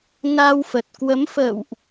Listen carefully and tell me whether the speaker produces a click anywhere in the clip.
no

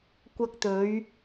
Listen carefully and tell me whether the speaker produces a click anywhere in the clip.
no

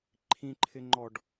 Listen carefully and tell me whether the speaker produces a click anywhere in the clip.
yes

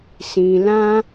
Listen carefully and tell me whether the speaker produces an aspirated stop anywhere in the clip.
no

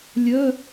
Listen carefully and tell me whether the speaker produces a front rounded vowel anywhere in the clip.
yes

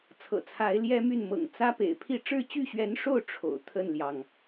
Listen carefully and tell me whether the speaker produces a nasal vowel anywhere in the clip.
no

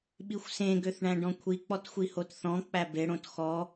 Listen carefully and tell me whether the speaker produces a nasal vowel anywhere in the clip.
yes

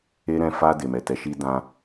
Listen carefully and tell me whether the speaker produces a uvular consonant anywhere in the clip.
no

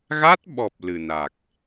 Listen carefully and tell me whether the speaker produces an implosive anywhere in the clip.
yes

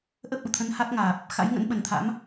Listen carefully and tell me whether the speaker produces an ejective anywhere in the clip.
no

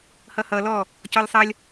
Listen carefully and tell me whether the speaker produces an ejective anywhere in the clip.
no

